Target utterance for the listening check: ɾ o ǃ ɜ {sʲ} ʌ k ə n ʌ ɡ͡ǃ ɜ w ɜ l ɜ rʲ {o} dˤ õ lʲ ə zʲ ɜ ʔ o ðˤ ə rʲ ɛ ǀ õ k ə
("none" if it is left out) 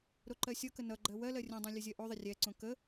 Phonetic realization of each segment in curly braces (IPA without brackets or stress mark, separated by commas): sʲ, õ